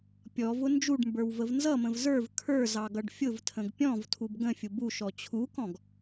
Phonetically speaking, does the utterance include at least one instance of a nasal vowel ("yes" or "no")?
yes